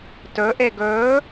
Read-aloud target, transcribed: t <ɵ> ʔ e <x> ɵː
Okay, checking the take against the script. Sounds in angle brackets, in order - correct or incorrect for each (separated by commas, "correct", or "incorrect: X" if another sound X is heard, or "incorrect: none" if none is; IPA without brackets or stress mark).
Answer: correct, incorrect: ɡ